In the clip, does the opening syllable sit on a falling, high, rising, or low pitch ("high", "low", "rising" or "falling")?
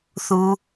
low